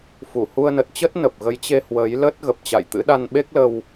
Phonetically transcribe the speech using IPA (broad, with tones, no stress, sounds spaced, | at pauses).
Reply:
f u˧˩ h u˧ ə̯ n ə˨˩ t̚ t͡ɕ ə˦˥ t̚ n ə˨˩ p̚ ɣ ə˨˦ j t͡ɕ e˧ h w ə˨˦ j l ə˦˥ t̚ ɣ ə˨˩ p̚ t͡ɕ a̰˧˨ j t̪ ɨ̰˧˥ ɗ a˧ n ɓ e˦˥ k̚ l ə˧ w